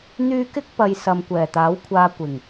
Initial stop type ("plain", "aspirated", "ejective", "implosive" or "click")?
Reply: plain